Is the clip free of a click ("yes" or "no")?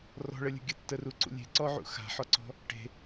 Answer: no